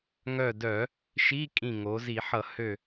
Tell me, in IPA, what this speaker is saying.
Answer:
ŋ œ˧˩ d œ˧˩˧ | ʃ i˧˥˧ kʼ ĩ˧˩ ŋ o˩˧ z i˧˩˧ ħ ʌ˧˩˧ h ø˧˩

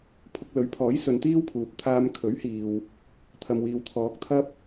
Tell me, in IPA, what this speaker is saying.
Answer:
pʰ ʊ˧ k̚ l ɵ˨˥ ɥ pʰ ɔː˨˥ j s ɵ˨˧ n t̪ iː˥ w pʰ uː˨ p̚ t̪ʰ aː˧ m kʰ ɵ˨˥ ɥ h iː˨ w | t̪ʰ ɐ˨ m w iː˨ w t̪ʰ ɔː˨ k̚ t̪ʰ ɐ˥ p̚

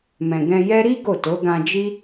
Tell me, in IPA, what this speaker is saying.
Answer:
m ɛ̃˨ ɡ ɛ̃˧ j ɛ˦ ɾ i˦ ɡ o˦˨ t o˨˦ ɡ ã˧ d͡ʒ i˦

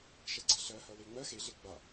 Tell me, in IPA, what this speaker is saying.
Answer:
ʃ ɛ ɡ͡ǀ ɛ ɬ ɜ h ɜ w e ŋ͡m ɜ x e ɮ e ɡ͡b a

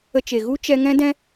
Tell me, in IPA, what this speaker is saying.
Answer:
ə˧ t͡ʃ e˨ ɣ u˦ t͡ʃ ɛ˧ ŋ ɛ̃˦ d ɛ̃˦

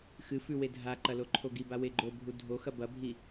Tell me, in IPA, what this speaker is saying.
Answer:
x ɨ f ʉ w e dʱ a ǃ ɐ l o ǃʰ o ɡ i b a w e ɡ͡ǃ o bʱ u dʱ o x ɐ b ɐ bʱ i

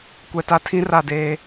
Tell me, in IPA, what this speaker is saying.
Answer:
kʷ ɛ˦ t a˦ tʰ ĩ˦ r a˦˨ d eː˦

